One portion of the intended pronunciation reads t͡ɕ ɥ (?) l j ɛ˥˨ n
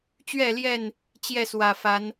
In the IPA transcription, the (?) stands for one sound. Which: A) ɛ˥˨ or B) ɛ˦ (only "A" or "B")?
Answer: A